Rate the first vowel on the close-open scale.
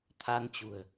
open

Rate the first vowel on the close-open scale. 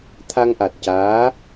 open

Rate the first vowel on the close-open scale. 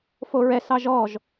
mid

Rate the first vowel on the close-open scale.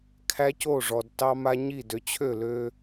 open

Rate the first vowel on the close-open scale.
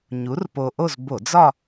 close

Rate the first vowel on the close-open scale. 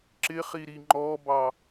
close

